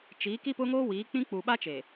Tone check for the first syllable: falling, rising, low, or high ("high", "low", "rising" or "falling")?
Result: rising